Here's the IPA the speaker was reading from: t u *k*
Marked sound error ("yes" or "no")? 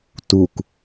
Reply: no